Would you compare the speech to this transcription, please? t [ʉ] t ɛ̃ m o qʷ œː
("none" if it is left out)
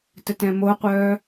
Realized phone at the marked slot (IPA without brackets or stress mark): ə